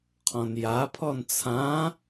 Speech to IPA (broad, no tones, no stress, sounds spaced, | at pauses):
qʰ ɔ̃ n j a pʰ ɔ n t͡sʰ ã